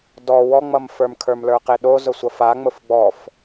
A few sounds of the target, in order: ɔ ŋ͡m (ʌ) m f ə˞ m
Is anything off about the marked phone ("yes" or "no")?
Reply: no